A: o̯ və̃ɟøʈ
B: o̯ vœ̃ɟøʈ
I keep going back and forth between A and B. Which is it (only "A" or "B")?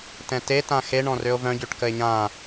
B